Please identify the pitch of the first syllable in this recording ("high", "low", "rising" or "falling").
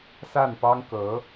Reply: falling